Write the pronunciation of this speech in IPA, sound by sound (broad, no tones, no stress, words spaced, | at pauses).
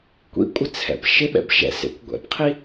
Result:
kʷḭkʷʼɪ t͡sʰɛ̰pʃɪɓɛ̰b ʃɛ̰sḛkʷɡʷɛ̰pqʰi